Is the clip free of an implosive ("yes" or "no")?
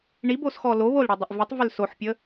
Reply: yes